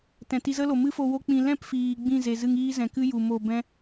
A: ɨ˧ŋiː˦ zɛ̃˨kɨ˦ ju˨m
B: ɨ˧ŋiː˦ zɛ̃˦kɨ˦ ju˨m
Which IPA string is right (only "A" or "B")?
A